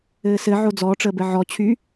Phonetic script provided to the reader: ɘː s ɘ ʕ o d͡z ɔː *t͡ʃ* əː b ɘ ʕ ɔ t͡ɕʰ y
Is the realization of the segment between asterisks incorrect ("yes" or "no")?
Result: yes